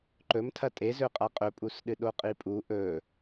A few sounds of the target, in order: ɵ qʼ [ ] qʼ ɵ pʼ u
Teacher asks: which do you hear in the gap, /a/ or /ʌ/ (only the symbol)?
a